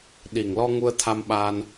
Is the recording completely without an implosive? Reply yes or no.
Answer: no